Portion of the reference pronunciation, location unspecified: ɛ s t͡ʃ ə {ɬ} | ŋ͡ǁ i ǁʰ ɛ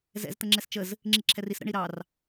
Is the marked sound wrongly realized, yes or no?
yes